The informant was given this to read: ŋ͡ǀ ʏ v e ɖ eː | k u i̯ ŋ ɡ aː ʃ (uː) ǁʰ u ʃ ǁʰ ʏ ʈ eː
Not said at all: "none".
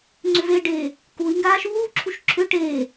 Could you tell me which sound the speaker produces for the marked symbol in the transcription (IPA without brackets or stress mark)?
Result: uː